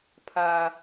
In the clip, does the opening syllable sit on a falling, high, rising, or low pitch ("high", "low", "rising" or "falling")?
low